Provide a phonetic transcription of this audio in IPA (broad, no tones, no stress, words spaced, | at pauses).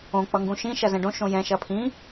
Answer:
õ k͡pʌŋɡũʃĩ ʃɐzɛ̃ɖõ ʃõjɛ̃ ʃɐpʰĩ